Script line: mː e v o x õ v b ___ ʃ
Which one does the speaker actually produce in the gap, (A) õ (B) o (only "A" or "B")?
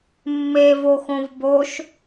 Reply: B